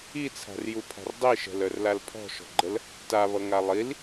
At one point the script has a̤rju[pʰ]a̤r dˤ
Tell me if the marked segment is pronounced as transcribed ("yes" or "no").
yes